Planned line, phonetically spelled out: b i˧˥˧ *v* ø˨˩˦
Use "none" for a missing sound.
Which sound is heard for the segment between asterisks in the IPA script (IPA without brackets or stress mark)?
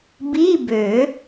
b